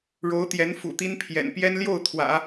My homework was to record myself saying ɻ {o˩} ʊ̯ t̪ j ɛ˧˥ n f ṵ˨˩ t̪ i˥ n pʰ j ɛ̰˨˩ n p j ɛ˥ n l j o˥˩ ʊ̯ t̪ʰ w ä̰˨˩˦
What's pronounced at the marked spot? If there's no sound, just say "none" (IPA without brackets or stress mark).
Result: o˧˥